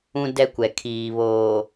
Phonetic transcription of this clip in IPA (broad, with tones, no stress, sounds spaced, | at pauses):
ũ˦ d ɛ˦ kʷ ɛ˨ kʰ iː˨ β oː˨